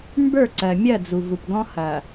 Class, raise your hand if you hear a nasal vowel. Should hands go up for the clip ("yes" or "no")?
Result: yes